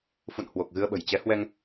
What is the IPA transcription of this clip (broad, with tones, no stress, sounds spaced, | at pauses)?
f ṵ˧˨ n h w o˨˩ k̚ ɣ ɨ˧ ə̯ ɓ ə̤˨˩ j t͡ɕ ɛ˨˦ h w ɛ˧ ŋ